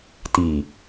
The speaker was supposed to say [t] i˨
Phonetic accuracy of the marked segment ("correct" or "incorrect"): correct